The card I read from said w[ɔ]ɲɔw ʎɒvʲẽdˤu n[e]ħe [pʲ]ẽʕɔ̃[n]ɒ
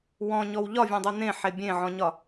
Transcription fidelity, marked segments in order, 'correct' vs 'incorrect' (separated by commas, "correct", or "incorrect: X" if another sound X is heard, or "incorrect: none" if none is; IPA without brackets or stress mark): incorrect: ɔ̃, incorrect: ẽ, incorrect: bʲ, incorrect: ɲ